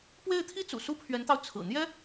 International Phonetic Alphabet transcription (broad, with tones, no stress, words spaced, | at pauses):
pwe˥˩ɪ̯t̪ʰi˥t͡sṵ˨˩ su˥pʰɥɛ˧˥nt̪ɑ˧ʊ̯ t͡sʰɹ̩˨˩n̪jɛ˥